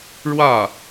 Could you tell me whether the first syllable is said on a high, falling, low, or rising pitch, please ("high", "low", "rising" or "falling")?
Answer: falling